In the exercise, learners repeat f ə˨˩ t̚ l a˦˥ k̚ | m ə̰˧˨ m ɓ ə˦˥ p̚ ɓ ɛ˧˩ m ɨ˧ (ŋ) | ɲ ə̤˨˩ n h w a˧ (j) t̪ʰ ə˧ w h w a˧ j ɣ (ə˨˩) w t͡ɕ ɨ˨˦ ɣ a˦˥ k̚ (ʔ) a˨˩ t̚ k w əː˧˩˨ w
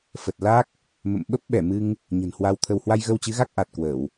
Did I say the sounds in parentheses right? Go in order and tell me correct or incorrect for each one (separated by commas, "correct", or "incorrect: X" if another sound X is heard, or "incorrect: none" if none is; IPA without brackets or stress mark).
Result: correct, incorrect: w, incorrect: ə˧, correct